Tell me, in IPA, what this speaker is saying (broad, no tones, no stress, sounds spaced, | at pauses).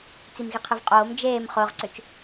t͡s i m ɣ i qʰ i v qʼ oː m d͡ʒ eː m χ ʊː ʁ ǀ ʏ t͡ʃ